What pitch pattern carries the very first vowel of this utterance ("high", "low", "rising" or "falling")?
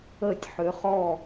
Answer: falling